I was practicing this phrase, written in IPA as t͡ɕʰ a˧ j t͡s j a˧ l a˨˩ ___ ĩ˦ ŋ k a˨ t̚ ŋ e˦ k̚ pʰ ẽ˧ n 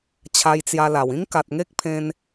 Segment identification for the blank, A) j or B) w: B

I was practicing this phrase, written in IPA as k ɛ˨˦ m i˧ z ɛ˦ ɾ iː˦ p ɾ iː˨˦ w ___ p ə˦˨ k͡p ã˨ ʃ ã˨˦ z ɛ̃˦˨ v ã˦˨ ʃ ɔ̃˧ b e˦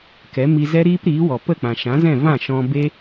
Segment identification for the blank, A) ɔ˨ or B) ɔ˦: A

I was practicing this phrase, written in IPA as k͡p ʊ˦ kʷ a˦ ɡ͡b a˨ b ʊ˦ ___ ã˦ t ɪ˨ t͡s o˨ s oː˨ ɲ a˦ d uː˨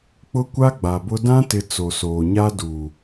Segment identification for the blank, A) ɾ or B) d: B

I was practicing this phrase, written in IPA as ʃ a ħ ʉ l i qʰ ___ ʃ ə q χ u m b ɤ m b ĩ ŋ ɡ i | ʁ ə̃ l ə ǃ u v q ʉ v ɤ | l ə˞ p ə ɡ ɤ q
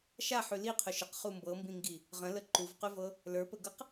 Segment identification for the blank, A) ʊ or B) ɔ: A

